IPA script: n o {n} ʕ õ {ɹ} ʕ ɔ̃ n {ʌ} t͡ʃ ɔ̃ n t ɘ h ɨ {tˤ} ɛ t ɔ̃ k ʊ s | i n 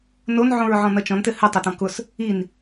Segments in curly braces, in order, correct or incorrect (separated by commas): correct, correct, correct, correct